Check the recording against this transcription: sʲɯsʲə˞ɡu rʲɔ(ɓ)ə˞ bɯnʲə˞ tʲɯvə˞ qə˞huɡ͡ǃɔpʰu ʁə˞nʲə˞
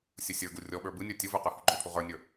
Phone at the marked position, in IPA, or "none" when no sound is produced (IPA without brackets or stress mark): ɓ